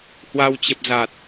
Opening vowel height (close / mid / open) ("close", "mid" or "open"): open